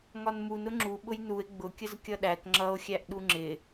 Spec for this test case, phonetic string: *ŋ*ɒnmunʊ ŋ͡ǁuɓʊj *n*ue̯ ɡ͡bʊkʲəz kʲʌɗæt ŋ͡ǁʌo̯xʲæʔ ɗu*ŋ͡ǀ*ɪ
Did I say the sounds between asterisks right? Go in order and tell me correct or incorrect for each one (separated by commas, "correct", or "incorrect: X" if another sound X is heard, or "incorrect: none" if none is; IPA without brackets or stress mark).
correct, correct, incorrect: ŋ͡ǁ